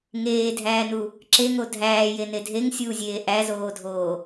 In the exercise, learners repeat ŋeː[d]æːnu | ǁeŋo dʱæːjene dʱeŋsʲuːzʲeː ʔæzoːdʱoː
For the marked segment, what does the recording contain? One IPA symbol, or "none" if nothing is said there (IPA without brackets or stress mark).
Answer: dʱ